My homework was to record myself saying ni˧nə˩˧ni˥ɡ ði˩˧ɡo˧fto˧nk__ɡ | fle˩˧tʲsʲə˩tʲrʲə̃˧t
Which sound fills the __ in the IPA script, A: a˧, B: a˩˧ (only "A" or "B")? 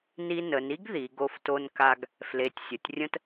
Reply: A